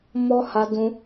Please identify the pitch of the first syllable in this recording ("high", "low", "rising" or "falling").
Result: high